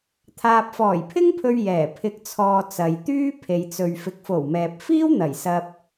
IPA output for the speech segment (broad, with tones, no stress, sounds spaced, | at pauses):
t̪ʰ aː˨ p̚ f ɔː˨˩ j pʰ ɪ˥ ŋ pʰ ɵ˧ ɥ j ɛː˨˩ pʰ ɪ˨˥ k̚ t͡sʰ ɔː˨ t͡s ɐ˨ j t̪ yː˥ pʰ e˨ j t͡s ɵ˨ ɥ f ɪ˨˥ k̚ f o˨˩ w m ɛː˨ p̚ f iː˥ w n̪ ɐ˨˩ j s ɐ˧ p̚